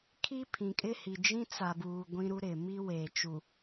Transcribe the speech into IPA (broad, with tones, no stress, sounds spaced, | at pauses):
kʰ i˦ pʰ ĩ˨ kʼ ɪ˦ h i˨ d͡ʒ ĩ˦ t͡s a˨ b uː˨ ɡʷ ĩ˦ ɾ u˦ ɾ ɪ˨ m i˦ w eː˨ t͡ʃ u˨